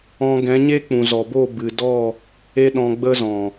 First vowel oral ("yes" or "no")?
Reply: no